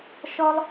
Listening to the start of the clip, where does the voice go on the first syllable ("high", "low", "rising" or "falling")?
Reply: high